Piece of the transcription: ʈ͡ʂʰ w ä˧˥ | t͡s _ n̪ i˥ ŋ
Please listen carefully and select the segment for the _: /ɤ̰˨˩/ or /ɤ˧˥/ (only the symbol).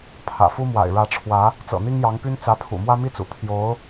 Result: ɤ̰˨˩